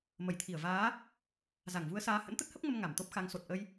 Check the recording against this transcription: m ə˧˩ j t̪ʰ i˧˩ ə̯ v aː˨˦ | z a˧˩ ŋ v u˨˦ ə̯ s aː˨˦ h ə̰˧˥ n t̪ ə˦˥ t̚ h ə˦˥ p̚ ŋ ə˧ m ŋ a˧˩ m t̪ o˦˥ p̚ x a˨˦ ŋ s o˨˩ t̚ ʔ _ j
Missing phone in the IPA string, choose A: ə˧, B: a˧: A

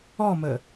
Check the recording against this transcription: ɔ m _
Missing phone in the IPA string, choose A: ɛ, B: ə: B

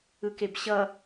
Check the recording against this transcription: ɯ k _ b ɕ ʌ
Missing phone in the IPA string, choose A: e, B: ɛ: A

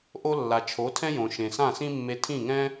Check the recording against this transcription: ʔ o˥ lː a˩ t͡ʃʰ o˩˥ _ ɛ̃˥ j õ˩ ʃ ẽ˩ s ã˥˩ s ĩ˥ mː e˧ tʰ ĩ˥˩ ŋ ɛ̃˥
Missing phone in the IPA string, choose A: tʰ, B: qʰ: A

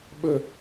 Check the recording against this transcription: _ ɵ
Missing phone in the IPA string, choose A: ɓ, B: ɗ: A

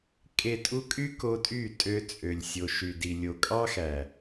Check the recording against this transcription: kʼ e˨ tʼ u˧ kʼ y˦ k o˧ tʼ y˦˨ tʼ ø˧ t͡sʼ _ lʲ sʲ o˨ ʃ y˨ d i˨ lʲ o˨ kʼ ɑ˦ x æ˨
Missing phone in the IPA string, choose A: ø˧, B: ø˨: B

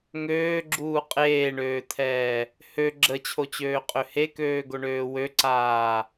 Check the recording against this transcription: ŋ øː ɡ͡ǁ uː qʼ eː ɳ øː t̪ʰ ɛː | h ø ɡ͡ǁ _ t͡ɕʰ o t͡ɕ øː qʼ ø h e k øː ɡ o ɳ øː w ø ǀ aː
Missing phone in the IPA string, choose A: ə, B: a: A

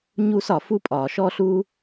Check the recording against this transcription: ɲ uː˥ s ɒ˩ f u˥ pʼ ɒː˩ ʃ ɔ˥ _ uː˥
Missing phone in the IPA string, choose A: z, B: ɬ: B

